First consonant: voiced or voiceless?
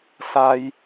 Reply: voiceless